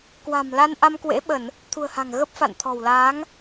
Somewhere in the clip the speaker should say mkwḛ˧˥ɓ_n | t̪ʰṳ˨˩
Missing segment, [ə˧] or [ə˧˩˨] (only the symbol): ə˧˩˨